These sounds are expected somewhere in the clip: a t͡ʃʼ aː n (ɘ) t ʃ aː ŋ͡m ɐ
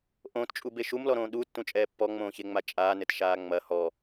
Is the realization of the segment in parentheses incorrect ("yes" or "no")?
no